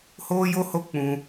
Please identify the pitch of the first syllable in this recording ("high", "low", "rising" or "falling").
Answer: high